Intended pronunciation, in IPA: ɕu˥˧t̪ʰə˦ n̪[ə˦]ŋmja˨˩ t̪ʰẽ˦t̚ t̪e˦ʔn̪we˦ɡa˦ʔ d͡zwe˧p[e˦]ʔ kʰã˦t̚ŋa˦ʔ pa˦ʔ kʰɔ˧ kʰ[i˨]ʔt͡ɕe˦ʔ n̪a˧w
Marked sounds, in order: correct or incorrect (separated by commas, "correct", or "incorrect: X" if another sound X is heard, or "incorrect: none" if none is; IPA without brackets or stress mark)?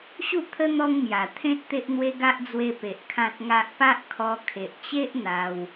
incorrect: ɔ˦, incorrect: e˨, incorrect: e˨